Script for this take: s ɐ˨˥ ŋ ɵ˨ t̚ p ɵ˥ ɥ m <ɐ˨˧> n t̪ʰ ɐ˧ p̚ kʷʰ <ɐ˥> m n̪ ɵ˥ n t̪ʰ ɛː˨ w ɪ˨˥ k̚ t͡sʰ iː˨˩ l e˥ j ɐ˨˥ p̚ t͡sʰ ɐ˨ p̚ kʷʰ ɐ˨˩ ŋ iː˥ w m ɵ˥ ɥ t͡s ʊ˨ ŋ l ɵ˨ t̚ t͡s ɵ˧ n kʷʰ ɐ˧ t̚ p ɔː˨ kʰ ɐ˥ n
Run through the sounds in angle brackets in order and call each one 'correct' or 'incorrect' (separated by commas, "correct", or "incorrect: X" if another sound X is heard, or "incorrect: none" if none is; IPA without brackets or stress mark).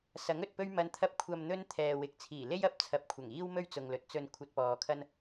correct, incorrect: ɐ˧